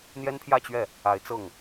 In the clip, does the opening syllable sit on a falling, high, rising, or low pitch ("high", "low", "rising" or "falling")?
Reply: high